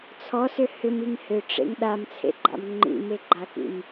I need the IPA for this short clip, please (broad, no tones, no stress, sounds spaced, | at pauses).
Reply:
t͡sʰ ɔ s ʏ h ʏ m i ŋ h ʏ ʈ͡ʂ ḛ ŋ ɗ a m t͡sʰ ḛ ɡ͡ǃ a̰ m ŋ͡ǃ ḭ m e ɡ͡ǃ a k ḭ m